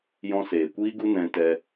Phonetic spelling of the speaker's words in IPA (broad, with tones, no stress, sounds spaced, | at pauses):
j ɔ̃˧ s eː˨ kʷ iː˦ ɡ u˦ n ɛ̃˧ t ɛ˧